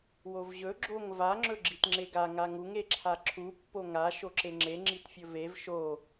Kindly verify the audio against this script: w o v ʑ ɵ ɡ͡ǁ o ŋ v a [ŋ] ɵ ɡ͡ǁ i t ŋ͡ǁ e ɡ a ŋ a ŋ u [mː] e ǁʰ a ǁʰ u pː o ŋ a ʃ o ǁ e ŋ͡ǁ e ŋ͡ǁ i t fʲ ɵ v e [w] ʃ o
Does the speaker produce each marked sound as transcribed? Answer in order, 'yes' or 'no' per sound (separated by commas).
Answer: no, no, no